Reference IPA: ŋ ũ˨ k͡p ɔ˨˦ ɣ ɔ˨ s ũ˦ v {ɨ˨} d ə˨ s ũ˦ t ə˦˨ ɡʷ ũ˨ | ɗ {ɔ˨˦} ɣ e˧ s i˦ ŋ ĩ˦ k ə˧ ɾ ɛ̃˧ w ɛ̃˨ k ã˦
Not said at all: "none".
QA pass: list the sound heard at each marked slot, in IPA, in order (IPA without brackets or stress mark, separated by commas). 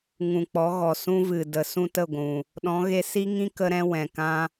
ɨ˨, ɔ̃˨˦